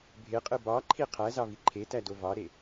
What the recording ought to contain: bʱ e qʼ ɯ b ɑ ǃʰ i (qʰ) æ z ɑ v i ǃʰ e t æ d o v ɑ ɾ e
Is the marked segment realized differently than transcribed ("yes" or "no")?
no